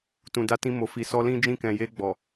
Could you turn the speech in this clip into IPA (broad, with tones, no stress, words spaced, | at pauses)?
tũ˨da˧ tĩ˧mo˨fi˨ sɔ˧ lĩ˦d͡ʒĩ˦˨kɛ̃˨ je˧ɡ͡bɔ˨